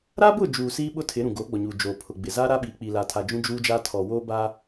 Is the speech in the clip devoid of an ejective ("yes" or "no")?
yes